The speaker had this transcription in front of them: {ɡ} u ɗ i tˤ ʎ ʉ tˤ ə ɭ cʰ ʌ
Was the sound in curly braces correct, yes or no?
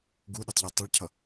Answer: yes